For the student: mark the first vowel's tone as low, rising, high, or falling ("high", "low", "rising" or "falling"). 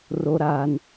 low